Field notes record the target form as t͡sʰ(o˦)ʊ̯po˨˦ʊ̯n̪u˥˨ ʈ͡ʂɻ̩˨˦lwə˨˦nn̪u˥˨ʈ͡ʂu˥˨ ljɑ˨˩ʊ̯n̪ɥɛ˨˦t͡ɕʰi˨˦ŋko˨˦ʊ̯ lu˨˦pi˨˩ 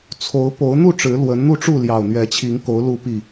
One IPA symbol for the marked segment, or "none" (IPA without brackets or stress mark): o˨˦